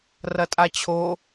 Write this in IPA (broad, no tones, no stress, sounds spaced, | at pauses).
r ɐ tʼ a t͡ɕʰ o